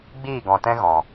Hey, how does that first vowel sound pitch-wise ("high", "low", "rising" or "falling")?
falling